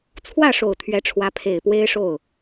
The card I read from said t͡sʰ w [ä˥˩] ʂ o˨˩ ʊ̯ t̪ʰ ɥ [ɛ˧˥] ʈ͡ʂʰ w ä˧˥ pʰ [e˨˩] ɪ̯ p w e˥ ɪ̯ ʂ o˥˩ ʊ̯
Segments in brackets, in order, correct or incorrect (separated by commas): correct, correct, correct